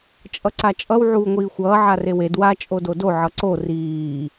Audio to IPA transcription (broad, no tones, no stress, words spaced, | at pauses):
t͡ʃʼʌǀat͡ʃʼʌw ʕuːŋʷiːxʷʌː ʕarewed wa t͡ʃʼododo ʕʌǀo riː